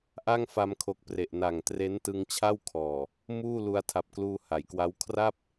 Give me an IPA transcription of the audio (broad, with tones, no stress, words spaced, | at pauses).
ʔa˥˩ŋfa˧mkʰo˨˩k̚ pre˨˩ʔ na˨˩ŋtre˦˥n tɯ˧ŋt͡ɕʰa˥˩wkʰɔː˨˩ | muː˥˩ lu˧a̯tʰa˨˩p̚kluː˧ ha˩˦jkwa˦˥w kʰra˥˩p̚